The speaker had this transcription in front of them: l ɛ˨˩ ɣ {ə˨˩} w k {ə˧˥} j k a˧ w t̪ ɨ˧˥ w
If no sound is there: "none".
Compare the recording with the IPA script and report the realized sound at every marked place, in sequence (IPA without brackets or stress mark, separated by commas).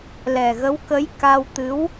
ə˧˥, ə˧˥